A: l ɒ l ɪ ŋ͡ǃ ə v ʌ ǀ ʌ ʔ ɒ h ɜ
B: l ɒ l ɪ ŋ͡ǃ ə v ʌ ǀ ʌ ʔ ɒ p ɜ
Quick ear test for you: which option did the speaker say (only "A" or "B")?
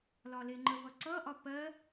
B